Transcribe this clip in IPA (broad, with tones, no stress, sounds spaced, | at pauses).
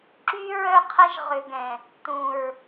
ǁ y˦ ɹ œ˦ qʰ ɐ˦ ʒ ʁ ʏ˨ ɡ ɛ̃˨ | t̪ ũ˨ ɹ